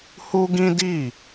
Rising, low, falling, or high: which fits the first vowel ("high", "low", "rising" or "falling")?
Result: high